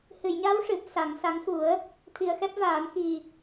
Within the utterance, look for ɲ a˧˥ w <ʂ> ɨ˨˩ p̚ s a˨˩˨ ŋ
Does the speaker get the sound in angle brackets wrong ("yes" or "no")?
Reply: no